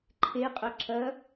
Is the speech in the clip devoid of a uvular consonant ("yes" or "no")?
no